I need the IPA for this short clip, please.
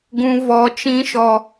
ɡũ˧ vɔ˧ t͡ʃĩ˦ʃɔ˧

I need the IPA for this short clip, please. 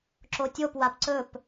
ǁotʲop wapǀɵp

